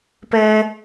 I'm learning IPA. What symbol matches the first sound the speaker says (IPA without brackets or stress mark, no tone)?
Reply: p